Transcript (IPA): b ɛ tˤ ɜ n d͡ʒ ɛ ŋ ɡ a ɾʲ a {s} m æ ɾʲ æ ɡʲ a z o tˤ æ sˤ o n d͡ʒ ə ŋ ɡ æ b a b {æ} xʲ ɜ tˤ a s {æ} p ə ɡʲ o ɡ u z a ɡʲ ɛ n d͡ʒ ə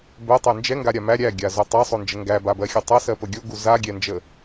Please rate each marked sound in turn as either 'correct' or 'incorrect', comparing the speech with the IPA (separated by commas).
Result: incorrect, incorrect, incorrect